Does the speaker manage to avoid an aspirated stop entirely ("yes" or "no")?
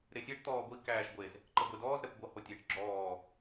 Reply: yes